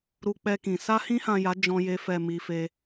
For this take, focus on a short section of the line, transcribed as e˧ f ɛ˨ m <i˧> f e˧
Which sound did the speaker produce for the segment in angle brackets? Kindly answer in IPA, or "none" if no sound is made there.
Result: i˧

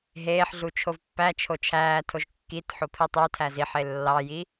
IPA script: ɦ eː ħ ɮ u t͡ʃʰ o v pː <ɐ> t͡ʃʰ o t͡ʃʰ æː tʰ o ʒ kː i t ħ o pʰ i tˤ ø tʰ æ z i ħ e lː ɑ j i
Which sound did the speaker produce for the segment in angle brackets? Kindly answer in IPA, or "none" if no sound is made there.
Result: æ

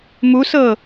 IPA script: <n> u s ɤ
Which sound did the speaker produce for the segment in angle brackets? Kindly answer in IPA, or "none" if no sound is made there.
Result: m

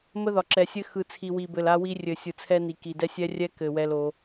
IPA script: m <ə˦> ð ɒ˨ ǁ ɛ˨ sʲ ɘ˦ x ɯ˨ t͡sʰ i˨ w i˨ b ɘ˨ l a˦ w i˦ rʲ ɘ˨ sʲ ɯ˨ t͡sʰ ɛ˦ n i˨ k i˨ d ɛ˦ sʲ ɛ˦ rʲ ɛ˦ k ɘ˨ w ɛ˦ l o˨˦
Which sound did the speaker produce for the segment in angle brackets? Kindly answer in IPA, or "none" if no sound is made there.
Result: ə˦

